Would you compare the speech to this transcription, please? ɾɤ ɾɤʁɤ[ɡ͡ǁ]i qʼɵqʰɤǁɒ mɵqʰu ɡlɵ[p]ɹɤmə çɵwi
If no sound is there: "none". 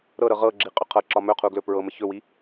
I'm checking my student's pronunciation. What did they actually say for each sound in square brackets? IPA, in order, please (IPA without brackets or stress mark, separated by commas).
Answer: ɡ͡ǁ, p